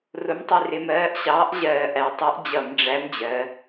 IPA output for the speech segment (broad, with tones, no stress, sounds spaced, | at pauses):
r ʊ˨˥ m tˤ i˧˩ r ɪ˧˩˧ m ɜː˨˥ ʔ ɕ ɑː˨˥ ʔ ʑ ɜː˧˩˧ ʔ æ˩˧ tˤ i˨˥ ʔ d͡ʑ ʌ˧˩˧ m ɖ͡ʐ æ˨˥ m d͡ʑ ɜ˩˧